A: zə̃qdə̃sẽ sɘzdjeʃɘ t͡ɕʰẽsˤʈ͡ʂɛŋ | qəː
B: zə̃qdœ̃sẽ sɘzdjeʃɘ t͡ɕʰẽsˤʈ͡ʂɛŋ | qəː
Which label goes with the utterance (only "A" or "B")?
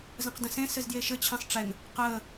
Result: A